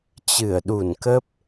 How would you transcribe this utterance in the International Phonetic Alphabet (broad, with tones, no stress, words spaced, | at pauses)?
t͡ɕɨ˧˩ə̯ɗu˧˩nkə˦˥p̚